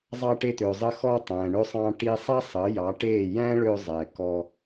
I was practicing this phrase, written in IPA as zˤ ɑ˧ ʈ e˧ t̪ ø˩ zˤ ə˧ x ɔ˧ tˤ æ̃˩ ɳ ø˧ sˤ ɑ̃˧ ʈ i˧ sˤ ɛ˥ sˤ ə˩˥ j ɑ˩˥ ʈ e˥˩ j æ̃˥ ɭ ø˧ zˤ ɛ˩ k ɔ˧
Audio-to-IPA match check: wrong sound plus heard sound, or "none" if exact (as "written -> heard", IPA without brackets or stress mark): none